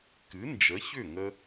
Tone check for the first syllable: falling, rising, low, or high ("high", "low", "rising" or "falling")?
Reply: rising